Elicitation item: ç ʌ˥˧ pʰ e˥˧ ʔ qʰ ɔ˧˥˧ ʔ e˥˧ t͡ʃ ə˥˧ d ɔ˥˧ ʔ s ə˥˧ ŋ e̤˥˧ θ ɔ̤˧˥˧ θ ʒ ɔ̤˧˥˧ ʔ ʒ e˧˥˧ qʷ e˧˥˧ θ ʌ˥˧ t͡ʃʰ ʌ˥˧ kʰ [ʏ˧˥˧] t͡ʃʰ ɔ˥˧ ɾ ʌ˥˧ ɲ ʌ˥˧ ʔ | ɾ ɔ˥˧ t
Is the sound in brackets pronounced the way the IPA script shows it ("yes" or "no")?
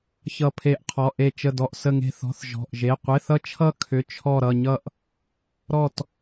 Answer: yes